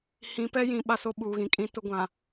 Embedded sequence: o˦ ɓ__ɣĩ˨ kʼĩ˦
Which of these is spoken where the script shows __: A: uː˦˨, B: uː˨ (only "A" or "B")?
B